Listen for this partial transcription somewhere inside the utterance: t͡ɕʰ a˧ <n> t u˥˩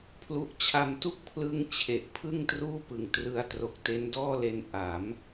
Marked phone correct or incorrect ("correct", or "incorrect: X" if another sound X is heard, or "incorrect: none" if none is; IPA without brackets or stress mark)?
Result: incorrect: m